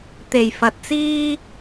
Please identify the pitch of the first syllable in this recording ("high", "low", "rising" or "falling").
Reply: low